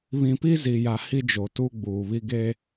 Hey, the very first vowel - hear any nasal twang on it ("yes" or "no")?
yes